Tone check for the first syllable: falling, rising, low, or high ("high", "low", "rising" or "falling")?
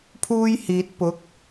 high